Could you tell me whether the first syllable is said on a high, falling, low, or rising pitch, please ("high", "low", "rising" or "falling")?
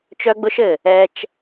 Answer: high